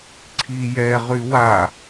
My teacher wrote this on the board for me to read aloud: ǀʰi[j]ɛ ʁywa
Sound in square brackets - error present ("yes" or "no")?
no